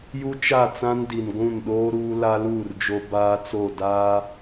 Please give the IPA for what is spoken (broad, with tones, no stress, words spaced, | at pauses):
ju˦t͡ʃa˦˨t͡sã˦n di˨n ɡʷũ˦˨nɗoː˦ɾuː˦ la˦luː˦˨rd͡ʒo˦ baː˦t͡so˦˨ daː˦